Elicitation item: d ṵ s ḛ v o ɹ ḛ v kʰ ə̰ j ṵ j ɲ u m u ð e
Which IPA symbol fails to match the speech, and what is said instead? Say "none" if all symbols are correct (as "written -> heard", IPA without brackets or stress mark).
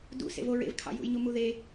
ə̰ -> ɑ̰